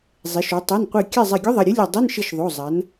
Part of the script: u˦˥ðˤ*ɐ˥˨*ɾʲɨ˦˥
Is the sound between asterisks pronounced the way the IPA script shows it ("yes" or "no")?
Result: no